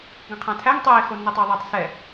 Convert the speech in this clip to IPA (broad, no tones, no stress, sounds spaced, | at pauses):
ɡ ə̃ qʰ ã tʰ æ ŋ tˤ ɛ e̯ x o nː æ tˤ ə e̯ ðˤ æ tˤ s ɛ